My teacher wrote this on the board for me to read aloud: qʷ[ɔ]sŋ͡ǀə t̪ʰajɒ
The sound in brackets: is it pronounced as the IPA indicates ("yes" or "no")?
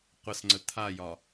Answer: no